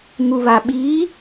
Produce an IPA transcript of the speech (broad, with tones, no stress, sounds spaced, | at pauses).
ŋ u˨ β a˨ ɓ iː˨˦